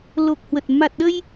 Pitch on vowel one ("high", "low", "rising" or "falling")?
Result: low